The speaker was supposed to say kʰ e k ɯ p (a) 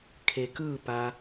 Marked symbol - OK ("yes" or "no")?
yes